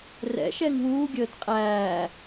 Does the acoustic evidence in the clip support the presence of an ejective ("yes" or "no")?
yes